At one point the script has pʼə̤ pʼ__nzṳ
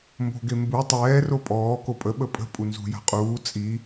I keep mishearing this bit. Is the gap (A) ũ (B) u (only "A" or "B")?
B